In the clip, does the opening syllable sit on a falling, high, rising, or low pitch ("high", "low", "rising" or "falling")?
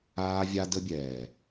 high